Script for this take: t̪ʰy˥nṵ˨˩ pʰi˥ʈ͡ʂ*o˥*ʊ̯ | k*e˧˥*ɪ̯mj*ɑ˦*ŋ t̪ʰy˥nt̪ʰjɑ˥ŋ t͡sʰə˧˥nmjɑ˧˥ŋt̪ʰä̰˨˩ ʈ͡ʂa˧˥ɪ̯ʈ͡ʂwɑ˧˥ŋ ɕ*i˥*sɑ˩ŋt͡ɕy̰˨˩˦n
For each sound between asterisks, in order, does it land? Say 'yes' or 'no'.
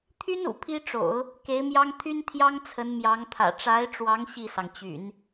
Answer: no, yes, no, no

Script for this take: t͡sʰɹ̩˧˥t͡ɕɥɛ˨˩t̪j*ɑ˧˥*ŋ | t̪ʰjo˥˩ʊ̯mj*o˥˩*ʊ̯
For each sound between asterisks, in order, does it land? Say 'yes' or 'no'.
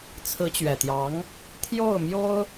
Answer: yes, no

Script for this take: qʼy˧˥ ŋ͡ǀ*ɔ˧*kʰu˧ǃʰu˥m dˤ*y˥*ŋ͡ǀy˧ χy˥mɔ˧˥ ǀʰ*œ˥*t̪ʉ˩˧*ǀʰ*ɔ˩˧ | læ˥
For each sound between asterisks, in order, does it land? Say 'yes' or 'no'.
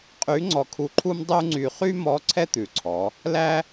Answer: yes, no, no, yes

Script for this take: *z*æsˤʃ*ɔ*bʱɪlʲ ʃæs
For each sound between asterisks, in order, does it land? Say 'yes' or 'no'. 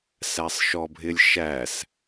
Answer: no, yes

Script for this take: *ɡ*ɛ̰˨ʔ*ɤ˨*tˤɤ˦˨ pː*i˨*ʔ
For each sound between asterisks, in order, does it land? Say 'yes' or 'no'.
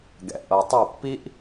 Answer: yes, yes, no

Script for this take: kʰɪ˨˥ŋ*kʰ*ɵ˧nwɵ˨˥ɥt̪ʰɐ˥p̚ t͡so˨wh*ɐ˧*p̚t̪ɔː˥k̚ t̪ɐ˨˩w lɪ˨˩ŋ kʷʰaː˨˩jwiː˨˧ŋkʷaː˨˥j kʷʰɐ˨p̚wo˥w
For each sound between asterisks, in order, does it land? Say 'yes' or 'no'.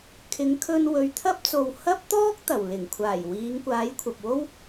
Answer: yes, no

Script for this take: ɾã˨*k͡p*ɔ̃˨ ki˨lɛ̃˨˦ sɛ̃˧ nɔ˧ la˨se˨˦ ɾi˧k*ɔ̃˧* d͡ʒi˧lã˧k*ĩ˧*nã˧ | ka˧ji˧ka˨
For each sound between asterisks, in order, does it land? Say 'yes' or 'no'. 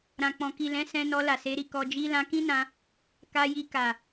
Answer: yes, no, no

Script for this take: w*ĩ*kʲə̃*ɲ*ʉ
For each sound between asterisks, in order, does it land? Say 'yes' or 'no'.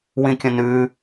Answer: yes, no

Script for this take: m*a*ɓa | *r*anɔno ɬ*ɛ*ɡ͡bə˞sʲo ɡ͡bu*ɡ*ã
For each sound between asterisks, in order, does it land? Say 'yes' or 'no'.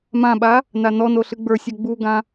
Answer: no, no, no, yes

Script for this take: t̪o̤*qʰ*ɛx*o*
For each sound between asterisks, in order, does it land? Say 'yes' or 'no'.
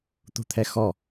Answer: no, no

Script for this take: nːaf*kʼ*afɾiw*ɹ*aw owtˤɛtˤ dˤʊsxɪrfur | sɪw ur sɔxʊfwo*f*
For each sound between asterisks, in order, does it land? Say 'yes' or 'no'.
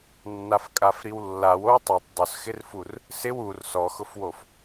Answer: yes, no, yes

